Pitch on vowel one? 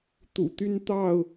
low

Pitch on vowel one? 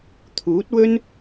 rising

